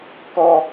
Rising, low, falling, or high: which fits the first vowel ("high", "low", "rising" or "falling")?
high